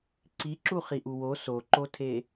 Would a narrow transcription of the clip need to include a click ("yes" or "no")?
yes